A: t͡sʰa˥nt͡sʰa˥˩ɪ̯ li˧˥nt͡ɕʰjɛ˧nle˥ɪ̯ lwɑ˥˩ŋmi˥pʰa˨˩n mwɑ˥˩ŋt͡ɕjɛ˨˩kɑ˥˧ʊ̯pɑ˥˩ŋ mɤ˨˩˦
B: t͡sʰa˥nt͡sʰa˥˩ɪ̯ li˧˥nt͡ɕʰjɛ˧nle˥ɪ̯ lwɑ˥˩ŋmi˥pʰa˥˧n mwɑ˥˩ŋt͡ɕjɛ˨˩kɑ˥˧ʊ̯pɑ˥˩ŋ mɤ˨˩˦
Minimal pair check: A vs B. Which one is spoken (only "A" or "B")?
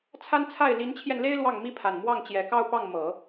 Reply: A